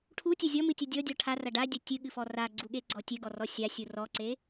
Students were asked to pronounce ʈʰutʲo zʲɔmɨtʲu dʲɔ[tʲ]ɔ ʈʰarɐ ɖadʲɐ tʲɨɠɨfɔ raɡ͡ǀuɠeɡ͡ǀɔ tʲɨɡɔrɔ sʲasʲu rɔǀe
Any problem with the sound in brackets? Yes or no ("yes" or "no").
yes